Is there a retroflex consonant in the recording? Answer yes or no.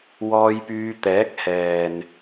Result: no